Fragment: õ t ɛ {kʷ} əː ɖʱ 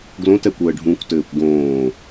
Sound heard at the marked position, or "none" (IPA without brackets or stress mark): kʷ